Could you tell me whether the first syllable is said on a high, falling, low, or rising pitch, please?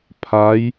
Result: rising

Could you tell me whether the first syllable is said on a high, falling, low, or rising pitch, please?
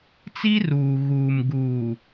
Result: high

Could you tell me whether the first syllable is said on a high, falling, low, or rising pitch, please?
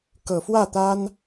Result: low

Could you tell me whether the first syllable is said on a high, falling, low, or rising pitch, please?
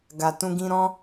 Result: low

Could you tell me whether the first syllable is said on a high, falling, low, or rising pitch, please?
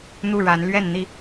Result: falling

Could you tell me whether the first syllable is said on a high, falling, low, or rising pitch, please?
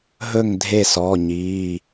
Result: falling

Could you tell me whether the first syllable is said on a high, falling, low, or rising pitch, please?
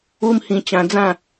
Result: high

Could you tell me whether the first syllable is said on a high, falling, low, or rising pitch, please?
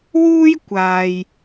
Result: high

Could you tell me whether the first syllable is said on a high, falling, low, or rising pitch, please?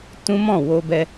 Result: high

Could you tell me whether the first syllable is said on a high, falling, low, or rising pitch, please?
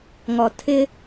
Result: low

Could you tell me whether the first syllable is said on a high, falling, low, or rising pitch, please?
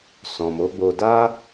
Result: low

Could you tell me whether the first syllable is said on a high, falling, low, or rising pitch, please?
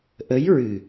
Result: rising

